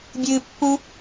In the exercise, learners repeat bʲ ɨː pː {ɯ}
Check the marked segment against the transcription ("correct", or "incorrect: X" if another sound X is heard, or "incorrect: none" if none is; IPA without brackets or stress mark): incorrect: u